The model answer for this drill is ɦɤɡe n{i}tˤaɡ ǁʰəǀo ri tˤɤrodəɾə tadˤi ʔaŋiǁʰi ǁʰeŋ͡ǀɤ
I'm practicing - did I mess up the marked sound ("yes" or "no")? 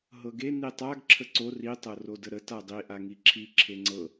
no